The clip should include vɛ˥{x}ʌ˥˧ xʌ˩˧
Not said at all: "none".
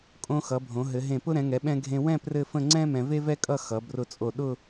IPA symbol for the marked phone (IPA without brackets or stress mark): kʼ